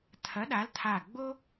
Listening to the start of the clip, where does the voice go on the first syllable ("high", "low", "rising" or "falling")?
rising